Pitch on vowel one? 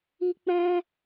high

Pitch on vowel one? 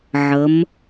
rising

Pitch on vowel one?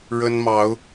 high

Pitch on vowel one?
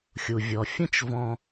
low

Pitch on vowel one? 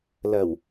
low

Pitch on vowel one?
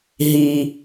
high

